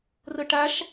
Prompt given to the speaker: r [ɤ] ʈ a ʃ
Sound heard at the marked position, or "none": ɤ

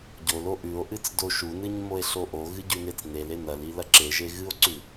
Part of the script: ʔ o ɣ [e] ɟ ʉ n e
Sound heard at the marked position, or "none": ɨ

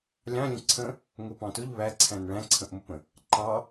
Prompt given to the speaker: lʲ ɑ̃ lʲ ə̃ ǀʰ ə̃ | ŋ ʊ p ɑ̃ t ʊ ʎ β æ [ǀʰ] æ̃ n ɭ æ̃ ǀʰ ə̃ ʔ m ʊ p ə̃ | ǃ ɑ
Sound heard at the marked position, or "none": ǀʰ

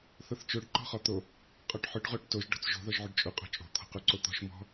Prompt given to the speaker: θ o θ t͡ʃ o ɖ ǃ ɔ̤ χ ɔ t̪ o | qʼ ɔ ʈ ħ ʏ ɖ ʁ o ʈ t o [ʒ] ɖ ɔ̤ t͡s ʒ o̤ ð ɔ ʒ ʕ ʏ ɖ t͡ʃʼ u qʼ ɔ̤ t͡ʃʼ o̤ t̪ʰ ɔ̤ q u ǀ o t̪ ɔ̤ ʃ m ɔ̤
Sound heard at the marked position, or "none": ʒ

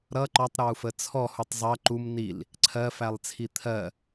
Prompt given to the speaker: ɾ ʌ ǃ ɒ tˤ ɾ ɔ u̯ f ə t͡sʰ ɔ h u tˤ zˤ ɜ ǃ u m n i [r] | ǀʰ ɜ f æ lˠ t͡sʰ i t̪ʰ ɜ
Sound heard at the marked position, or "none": l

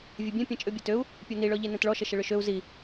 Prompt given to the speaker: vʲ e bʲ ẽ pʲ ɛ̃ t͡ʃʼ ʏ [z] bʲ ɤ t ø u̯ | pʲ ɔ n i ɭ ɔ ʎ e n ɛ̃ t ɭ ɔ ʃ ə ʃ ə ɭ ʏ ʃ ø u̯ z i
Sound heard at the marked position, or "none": none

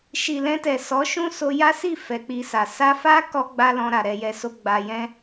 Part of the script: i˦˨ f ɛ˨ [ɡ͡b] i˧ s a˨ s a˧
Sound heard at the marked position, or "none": k͡p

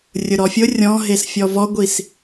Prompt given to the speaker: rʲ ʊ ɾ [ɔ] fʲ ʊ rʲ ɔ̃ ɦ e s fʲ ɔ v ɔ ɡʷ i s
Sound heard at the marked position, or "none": ɔ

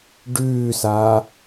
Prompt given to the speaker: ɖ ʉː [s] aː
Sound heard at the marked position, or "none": s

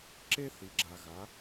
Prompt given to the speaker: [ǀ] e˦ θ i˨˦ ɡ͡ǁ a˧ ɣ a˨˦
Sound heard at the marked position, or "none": ǁ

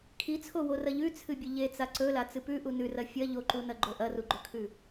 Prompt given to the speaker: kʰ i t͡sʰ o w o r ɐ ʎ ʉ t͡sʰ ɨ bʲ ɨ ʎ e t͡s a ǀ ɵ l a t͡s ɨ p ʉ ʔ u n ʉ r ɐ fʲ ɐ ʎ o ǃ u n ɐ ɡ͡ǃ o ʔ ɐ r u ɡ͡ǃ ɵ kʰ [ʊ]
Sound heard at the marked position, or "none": ʉ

